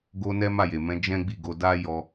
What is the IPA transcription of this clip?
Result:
ɡ o˧ n ɛ˦ m a˦˨ j e˨ m ɛ̃˨˦ d͡ʒ ɛ̃˦ ɡ͡b i˦˨ ɡ o˧ d a˦ j ɔ˧

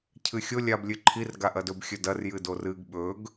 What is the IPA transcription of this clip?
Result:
cʰ ɨ xʲ o lʲ a b lʲ ɨ ǃʰ i r ɡ a ʔ ɐ d ɵ b xʲ ɵ d ɐ r j ɨ d o r ɨ ɡ ɓ ɵ ɡ

